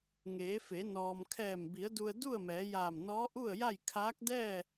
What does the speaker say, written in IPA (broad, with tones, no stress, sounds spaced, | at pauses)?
ŋ eː˩˧ f e˩˧ n ɔː˩ m kʰ ɛː˧˩ m b i˩˧ ə̯ d u˧ ə̯ d u˥˨ ə̯ m ɛː˩˧ j aː˧˩ m n ɔː˧˥ ʔ u˥˨ ə̯ j a˥˨ j kʰ aː˧˥ k̚ d ɛː˥˨